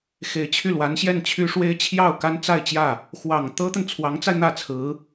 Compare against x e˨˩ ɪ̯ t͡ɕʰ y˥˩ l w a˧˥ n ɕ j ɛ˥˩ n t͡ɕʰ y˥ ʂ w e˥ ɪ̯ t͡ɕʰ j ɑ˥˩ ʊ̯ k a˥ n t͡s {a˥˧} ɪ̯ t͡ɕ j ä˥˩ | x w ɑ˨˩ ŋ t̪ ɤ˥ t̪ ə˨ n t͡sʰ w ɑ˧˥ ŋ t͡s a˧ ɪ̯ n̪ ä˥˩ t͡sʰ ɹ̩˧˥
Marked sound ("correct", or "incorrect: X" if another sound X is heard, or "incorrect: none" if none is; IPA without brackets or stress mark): correct